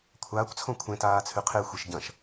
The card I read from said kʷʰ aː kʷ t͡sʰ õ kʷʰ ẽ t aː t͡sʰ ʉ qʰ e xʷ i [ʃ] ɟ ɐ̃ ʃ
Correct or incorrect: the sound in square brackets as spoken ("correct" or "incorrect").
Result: correct